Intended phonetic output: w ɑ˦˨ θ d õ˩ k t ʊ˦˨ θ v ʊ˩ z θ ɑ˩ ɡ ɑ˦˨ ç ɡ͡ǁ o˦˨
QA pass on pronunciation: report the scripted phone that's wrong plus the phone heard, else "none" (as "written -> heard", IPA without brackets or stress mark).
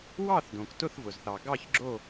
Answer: none